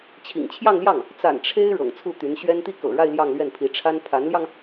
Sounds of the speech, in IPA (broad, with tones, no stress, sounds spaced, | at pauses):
t͡ɕʰ ḭ˨˩ ŋ t͡ɕʰ j ɑ˥˧ ŋ l j ɑ˥˩ ŋ | t͡s a̰˨˩ n ʈ͡ʂʰ e˥ ɪ̯ ɻ ɤ̰˨˩ ŋ t͡sʰ u˥˩ t̪ y˧˥ n ɕ ɥ ɛ˥ n t̪ i˥˩ k ɤ̰˨˩ ɻ a˥˧ ɪ̯ l j ɑ˥˧ ŋ l ɥ ɛ˥˩ n pʰ i˧˥ ʈ͡ʂʰ a˥ n pʰ a˧˥ n l j ɑ˧ ŋ